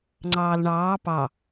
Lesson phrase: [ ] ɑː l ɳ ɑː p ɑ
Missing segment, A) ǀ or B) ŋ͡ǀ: B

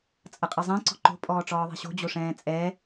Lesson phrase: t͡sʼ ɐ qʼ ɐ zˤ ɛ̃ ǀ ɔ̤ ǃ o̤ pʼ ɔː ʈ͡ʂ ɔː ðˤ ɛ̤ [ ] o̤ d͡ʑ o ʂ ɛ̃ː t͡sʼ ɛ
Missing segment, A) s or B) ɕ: B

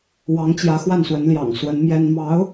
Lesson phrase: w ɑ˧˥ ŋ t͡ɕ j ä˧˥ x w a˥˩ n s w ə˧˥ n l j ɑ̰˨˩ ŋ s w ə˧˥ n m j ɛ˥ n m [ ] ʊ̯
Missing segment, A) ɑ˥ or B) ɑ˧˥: B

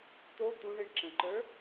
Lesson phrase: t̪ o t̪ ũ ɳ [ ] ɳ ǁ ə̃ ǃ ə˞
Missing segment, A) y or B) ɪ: B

